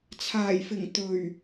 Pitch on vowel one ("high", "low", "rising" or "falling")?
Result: low